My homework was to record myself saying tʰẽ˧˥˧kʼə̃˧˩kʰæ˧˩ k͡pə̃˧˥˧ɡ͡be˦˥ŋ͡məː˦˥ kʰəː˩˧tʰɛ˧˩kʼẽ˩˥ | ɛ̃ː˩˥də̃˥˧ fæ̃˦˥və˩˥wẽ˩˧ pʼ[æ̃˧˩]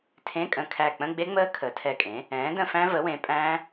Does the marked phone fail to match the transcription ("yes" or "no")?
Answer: yes